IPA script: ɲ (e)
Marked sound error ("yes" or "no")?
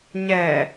yes